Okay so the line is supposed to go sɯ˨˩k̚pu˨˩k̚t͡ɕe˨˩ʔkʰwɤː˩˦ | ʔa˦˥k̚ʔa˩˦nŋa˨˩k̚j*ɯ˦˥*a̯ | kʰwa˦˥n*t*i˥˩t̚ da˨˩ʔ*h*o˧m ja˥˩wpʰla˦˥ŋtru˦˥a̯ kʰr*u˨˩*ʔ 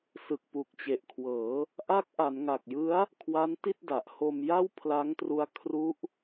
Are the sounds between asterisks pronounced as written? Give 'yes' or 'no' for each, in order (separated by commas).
yes, yes, yes, no